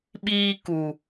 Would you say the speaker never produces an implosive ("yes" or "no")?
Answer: no